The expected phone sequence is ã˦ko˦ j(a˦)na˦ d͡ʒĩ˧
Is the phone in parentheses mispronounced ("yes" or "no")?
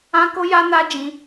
no